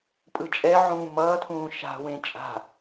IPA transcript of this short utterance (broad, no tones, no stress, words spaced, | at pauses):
pʼɯt͡ʃʼɛʕũː mʌːtʰũː ʃa̤wẽ t͡ʃʼa̤